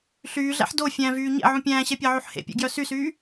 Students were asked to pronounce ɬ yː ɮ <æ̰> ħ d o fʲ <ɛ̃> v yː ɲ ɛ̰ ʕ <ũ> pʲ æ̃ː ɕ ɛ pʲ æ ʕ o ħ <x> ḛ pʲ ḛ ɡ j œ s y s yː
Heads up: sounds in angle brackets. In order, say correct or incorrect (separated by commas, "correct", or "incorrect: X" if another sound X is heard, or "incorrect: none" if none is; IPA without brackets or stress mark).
correct, incorrect: æ̃, correct, incorrect: h